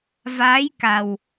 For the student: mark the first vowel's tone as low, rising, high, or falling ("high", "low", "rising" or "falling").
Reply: rising